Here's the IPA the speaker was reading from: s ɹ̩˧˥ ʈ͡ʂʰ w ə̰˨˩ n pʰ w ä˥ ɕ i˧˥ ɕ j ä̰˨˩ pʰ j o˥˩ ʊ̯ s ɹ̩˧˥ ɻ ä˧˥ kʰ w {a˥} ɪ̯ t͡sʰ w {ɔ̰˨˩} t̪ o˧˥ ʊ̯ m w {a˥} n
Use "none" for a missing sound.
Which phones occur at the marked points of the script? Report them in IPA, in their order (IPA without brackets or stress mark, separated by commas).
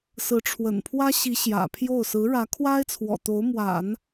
a˥, ɔ̰˨˩, a̰˨˩˦